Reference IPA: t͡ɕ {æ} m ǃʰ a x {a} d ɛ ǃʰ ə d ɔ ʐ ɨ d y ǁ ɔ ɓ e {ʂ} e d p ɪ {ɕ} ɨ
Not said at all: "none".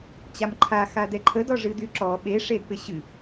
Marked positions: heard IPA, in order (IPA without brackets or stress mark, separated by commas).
a, a, ʂ, ɕ